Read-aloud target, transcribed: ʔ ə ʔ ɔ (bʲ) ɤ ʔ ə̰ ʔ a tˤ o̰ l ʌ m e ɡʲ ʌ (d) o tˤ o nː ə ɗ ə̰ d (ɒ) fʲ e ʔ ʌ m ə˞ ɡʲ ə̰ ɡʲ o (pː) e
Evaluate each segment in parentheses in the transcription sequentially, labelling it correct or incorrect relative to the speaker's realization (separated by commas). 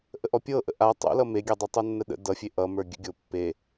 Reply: incorrect, incorrect, incorrect, correct